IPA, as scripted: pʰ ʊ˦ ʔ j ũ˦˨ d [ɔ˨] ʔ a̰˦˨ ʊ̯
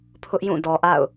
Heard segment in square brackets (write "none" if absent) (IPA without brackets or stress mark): ɔ˨